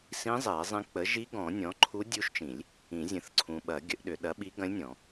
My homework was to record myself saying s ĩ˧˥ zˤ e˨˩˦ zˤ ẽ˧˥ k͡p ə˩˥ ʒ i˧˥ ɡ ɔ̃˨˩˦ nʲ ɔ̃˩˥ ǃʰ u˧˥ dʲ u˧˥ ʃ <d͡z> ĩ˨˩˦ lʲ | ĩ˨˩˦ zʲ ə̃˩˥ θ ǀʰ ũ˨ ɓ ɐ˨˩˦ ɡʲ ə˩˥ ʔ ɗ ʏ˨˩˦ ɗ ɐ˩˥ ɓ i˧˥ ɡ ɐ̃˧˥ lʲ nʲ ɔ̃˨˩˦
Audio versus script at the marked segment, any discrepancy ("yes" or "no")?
yes